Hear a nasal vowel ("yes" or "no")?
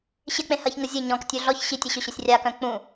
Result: yes